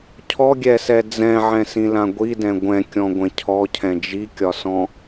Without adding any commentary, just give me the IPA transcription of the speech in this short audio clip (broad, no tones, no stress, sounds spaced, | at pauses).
cʰ ɔ ɡʲ ɛ s ɛ d͡z ɛ̃ ʕ ɛ̃ s ĩ l ã ɡʷ i d ɛ̃ ɡʷ ɛ̃ kʲ ɔ̃ ɡʷ ɛ̃ cʰ ɔ cʰ ɛ̃ d͡ʒ i kʲ ɒ s ɔ̃